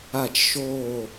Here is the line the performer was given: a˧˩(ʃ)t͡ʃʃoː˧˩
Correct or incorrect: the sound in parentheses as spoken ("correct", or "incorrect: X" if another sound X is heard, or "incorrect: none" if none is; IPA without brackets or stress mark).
incorrect: none